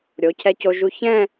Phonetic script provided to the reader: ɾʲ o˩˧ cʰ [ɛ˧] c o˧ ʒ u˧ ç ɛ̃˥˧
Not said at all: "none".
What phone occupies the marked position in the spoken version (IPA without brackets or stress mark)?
ɛ˧